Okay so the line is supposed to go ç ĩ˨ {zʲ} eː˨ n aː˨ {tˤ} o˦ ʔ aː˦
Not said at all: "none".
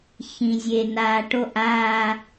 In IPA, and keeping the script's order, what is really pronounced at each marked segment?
zʲ, ʈ

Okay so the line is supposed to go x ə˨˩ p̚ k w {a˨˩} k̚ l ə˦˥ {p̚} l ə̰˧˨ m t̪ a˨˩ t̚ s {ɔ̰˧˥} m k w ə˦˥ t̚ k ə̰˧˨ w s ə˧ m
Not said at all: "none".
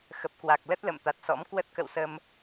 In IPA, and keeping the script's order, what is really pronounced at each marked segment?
a˨˩, t̚, ɔ̰˧˥

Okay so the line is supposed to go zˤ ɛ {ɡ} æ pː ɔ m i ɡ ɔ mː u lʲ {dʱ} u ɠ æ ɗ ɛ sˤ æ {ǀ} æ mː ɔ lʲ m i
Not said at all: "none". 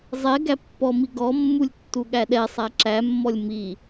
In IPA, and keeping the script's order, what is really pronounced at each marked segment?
ɡ, tː, ǁ

